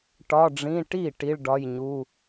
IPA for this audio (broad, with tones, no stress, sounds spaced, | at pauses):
ʈ ɒ˧˥˧ ɖ͡ʐ ĩ˧˥˧ ʈ i˥˩ ʈ i˧˥˧ ɭ ɖ ɒ˧˥˧ j ɲ u˧˥˧